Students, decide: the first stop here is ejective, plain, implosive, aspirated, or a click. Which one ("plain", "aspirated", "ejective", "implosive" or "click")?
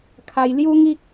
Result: aspirated